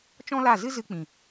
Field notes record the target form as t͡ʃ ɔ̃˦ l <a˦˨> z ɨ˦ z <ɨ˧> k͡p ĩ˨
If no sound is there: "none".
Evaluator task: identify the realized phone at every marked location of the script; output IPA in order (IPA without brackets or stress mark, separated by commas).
a˦˨, ɨ˧